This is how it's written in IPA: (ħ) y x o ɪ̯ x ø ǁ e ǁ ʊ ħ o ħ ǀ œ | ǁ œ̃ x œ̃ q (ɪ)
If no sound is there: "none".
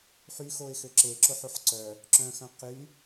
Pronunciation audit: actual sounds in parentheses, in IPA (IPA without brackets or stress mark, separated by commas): ħ, y